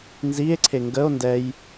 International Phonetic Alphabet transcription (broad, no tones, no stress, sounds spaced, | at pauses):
n z i e̯ ǀʰ e ŋ ɡ ə o̯ n d ɛ j